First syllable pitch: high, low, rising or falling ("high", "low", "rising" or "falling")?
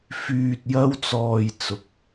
low